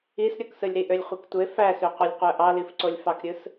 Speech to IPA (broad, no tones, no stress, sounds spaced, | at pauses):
i s ɾʲ o k s ɯ lʲ ɾ i ʔ ø lʲ χʷ i k tʷ e f æ s ø qʷ ɯ lʲ qʷ æ ʔ ɑ l i f ǀ o lʲ f ɑ k ɾʲ ɯ s